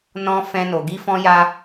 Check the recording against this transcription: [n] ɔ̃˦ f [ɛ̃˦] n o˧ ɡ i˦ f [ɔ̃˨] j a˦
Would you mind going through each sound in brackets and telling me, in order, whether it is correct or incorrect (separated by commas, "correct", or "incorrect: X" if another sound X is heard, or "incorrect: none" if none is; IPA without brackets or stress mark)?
correct, correct, incorrect: ɔ̃˦